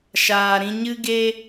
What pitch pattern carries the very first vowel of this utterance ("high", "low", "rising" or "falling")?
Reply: low